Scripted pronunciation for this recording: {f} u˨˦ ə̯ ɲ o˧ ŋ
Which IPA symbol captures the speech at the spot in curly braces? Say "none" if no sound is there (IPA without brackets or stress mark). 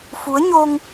f